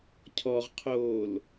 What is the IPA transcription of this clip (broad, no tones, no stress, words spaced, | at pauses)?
cʰɔʁqʰoːl